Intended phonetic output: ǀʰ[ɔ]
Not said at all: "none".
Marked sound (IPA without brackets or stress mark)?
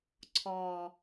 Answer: ɔ